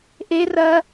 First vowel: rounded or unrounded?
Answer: unrounded